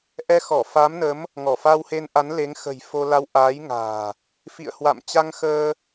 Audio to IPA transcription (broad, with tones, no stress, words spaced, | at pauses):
ʔɛ˧xɔ˧˩fa˨˦mnə˨˦m | ŋɔ˧˩fa˧whe˧nʔa˨˦n le˨˦ŋ xə̤˨˩jfo˧la˧w ʔaː˨˦jŋa̤ː˨˩ | fḭ˧˨ə̯ hwa̰˧˨mt͡ɕa˧ŋxəː˧